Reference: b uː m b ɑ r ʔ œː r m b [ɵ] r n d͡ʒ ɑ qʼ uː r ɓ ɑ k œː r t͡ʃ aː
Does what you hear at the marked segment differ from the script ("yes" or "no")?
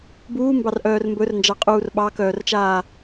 no